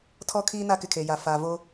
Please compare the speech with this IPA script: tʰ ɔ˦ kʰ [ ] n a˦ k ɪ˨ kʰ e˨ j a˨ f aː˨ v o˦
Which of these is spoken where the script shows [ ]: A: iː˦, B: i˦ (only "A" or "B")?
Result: A